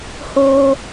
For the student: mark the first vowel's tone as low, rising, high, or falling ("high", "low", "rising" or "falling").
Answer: high